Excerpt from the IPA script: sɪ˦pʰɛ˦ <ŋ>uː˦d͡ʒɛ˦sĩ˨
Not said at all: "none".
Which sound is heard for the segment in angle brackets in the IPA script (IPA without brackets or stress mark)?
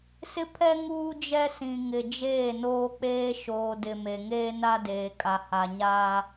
ŋ